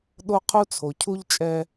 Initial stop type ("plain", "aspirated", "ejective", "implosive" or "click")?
implosive